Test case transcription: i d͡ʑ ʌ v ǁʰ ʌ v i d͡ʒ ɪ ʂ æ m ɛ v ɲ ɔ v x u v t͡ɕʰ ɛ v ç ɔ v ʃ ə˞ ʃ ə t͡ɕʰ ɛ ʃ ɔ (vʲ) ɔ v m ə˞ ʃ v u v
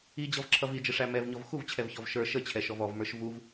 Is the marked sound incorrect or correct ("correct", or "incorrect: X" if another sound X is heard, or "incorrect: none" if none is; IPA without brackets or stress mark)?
incorrect: v